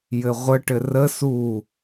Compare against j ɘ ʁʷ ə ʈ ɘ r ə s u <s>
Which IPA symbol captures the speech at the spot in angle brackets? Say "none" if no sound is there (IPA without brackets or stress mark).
none